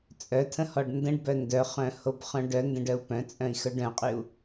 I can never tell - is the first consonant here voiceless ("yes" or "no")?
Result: yes